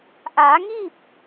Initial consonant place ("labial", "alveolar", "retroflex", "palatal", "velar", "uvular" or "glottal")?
glottal